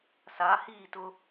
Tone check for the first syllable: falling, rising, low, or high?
rising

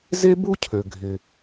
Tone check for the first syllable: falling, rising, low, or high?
high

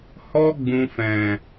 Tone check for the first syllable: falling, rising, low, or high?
high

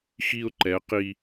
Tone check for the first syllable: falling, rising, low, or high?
high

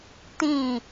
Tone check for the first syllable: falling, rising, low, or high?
falling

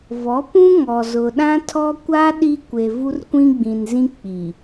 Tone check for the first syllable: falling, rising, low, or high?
rising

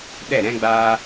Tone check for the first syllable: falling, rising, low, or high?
falling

